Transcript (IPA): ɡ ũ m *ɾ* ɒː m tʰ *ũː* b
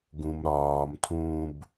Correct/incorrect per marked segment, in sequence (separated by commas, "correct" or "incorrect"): correct, correct